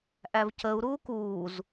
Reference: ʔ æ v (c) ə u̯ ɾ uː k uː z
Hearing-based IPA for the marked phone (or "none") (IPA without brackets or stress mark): c